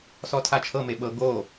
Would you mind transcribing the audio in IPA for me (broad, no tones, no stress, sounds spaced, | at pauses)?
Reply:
s ɔ tʰ a t͡ʃʰ ɤ m e ɓ ɤ ɡ o